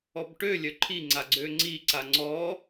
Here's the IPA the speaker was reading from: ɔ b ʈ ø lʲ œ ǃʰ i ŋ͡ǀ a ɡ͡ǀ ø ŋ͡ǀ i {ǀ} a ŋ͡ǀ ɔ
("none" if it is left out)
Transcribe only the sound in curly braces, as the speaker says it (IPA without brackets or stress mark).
ǀ